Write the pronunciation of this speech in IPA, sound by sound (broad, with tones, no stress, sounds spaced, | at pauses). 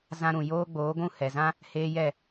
z ã˧ ɾ ũ˨ j oː˧ ɡ͡b oː˨˦ ɡʷ ũ˦˨ h ɛ˨ z ã˦ | h eː˧ j ɛ˦˨